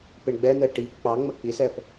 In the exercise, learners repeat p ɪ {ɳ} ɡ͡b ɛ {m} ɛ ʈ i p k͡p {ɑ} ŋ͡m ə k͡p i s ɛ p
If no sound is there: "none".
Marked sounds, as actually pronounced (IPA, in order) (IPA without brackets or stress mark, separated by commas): ɳ, n̪, ɑ